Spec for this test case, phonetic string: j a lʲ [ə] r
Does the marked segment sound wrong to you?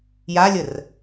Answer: no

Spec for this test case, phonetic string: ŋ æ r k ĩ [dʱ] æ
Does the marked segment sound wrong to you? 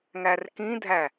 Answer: no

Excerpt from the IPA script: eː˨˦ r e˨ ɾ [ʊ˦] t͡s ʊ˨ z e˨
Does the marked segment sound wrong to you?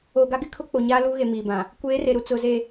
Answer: yes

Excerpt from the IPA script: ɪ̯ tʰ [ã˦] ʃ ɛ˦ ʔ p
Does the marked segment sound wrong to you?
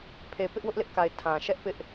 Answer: yes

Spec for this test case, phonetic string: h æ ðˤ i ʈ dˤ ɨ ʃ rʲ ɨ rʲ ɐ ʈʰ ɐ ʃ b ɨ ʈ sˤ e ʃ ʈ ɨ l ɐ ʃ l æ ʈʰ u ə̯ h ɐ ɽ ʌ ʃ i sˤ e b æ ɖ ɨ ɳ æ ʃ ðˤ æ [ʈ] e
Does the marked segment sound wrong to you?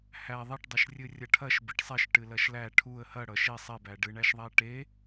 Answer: no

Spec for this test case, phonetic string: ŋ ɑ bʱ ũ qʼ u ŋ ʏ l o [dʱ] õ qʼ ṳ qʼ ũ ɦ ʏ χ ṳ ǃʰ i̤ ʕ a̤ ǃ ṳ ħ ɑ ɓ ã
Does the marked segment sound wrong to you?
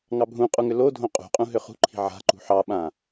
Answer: no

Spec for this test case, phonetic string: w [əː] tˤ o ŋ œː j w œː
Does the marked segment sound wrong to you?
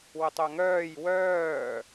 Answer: yes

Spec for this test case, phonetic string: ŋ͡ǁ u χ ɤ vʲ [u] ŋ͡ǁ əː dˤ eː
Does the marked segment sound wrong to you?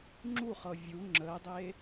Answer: no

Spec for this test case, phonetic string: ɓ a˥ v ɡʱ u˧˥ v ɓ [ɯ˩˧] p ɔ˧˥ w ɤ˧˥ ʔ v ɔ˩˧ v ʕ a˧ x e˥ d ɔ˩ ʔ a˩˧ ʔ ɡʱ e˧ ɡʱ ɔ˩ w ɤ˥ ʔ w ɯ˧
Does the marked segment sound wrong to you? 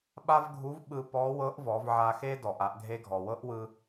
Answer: yes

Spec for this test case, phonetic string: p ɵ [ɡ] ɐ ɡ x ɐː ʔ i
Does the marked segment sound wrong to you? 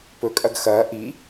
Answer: yes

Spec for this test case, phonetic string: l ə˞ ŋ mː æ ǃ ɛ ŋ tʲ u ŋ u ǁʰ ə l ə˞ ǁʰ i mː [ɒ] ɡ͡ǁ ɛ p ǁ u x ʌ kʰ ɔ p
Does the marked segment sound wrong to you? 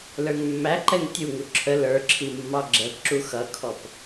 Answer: yes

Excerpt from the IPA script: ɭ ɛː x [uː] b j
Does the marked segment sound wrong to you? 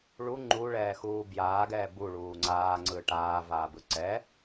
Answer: no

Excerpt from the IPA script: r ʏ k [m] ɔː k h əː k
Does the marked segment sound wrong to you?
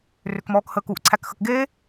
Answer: no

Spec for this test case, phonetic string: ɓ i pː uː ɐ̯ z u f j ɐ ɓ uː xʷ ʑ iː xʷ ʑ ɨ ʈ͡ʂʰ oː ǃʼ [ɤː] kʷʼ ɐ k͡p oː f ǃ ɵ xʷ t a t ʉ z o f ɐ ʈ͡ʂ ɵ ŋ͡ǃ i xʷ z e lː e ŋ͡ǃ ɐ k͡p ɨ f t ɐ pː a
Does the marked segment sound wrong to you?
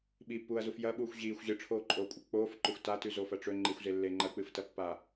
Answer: yes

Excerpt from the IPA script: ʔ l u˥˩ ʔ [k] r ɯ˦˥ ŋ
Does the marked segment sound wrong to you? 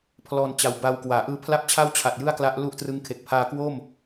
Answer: yes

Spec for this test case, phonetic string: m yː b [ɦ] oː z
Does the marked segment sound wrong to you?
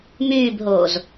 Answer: no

